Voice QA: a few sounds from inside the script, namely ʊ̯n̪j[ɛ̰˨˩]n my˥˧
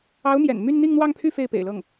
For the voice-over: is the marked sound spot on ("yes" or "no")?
yes